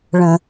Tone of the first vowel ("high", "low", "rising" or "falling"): low